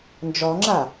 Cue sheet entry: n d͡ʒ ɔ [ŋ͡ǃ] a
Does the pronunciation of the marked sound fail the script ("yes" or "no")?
yes